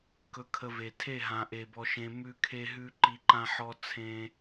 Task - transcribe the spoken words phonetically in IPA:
k ɵ˧ kʰ ə˧ v e˨ tʰ e˦˨ ɦ ã˨ ʔ e˨ b ɔ˧ ʃ ẽ˧ m ʉ˧ kʰ e˧ ɦ ʉ˧ ǃ i˧ ǃ ã˦ ħ ɔ˦ t͡sʰ ẽ˦

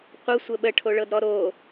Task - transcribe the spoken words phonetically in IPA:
qʷ ə sʷ ə ɓ ə ʈʰ o ɭ ɤ d ɾ ɔ ɾ o

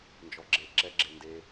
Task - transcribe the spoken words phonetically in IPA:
n d͡ʒ ɔ ɡ͡ǁ e ǁ ɛ ɡ͡ǁ e n d e

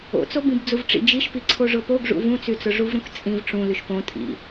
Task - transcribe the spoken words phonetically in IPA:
o̰ t͡s o b ĩ b d͡z u v ʈ͡ʂ ḭ d͡ʒ i ʃ p i ǀʰ o ʐ ʊ p o ɡ ʐ ṵ v ũ t͡s y t͡s ʊ ʐ u v ɾ ũ k t͡sʼ ĩ v ʈ͡ʂ ũ l y ʃ p õ tʼ ḭ

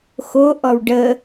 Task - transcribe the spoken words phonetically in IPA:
x o ʔ ɔ w ɖ ə

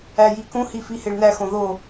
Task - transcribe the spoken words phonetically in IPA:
æ j i k ũ h i f i h e ɭ n æ x õ ð o

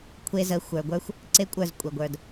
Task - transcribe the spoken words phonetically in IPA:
kʷʰ e˧ z ə˨˦ xʷ ə˞˨ ɡʷ ə˞˧ xʷ | ǀ e˦ kʷʼ ə˞˦˨ z kʷʼ ə˨ ɡʷ ə˞˨ d

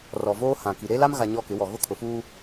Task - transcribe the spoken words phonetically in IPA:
r ɔ˨ v oː˦ h ã˨ k i˨ ɾ e˦ l a˦ m ɣ a˨ ɲ ɔ˦ k ɪ˨˦ w ɔ˨ ɣ ʊ˦ kʰ ʊ˨ f uː˦

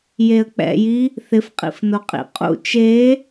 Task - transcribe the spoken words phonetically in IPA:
j e ə̯ k͡p ɛ̰ j i | θ ɪ f qʼ ḭ f n o qʼ ḭ qʼ ṵ t͡ʃ e

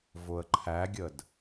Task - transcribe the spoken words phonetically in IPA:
v ʊ ə̯ ǃʰ æ ɡʲ ə d

